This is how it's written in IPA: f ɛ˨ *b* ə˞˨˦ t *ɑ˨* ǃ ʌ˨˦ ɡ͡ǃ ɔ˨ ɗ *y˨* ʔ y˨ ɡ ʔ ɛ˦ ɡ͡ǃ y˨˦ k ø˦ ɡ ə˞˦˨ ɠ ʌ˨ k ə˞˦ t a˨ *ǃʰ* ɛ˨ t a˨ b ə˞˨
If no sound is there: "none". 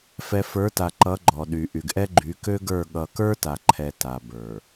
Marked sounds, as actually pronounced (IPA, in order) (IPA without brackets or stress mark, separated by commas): f, a˨, y˨, ǃʰ